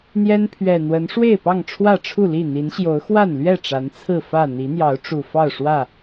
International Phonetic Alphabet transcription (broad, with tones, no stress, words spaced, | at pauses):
n̪jɛ˦npʰɥɛ˨˩n̪wə˨˦n ʂwe˥˨ɪ̯pɑ˥˨ŋ ʈ͡ʂʰwä˥˨ʈ͡ʂʰu˥˨li˥˨ n̪i˨˦nɕjo˨˦ʊ̯ xwa˥˨nlɥɛ˥˨ ʈ͡ʂa˨˦nt͡sʰɹ̩˥˨ fä˥˨ n̪i˨˦n̪jɑ˨˦ʊ̯ʈ͡ʂu˨˩ fɑ˥˨ʊ̯ʂwä˥˨